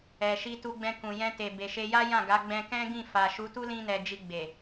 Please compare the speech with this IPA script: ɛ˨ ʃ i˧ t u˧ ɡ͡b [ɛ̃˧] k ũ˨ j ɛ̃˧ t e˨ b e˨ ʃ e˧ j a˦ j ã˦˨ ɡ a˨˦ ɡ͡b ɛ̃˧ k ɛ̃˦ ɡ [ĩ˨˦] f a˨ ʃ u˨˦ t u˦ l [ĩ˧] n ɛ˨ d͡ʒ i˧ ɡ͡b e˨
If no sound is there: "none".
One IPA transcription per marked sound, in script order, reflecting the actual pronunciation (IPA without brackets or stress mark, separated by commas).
ɛ̃˧, ĩ˦˨, ĩ˧